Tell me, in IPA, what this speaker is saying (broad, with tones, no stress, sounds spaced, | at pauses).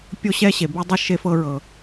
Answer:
pʲ o˥ ɕ ɛ˥ ɕ e˩ b e˥ dˤ ɤ˥ ʃ e˧ f ɤ˧ ɹ ɤ˩